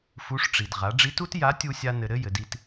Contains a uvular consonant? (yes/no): yes